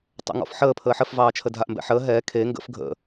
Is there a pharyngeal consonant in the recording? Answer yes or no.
yes